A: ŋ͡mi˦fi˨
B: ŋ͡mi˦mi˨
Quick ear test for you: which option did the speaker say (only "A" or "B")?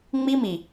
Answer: B